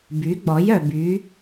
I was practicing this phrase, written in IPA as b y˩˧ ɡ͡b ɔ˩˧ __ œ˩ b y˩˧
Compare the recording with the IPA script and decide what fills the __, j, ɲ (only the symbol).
j